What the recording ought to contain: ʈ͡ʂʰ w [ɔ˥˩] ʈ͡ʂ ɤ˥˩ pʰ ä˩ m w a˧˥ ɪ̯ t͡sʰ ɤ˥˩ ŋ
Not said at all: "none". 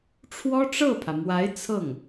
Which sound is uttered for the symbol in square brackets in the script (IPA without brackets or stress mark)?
ɔ˥